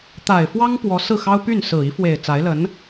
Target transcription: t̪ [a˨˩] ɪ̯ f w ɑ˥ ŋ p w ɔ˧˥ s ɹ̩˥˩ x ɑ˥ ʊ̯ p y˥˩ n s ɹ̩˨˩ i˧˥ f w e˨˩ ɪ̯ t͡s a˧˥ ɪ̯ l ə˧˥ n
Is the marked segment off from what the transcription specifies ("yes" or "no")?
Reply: no